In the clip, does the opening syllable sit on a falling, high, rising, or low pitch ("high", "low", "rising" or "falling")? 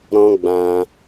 high